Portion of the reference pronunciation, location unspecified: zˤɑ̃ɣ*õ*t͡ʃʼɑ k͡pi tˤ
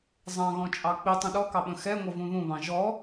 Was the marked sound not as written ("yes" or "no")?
yes